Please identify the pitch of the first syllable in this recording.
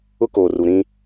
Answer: high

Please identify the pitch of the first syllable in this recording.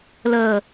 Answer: low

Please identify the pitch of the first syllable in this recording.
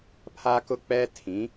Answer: high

